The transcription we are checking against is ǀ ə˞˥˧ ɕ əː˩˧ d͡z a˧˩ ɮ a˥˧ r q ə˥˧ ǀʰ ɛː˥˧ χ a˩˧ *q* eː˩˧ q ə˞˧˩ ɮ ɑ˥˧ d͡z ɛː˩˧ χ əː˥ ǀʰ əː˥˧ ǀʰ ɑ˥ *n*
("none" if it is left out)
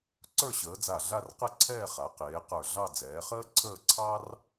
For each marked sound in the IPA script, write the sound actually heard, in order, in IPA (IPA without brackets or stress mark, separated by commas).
q, r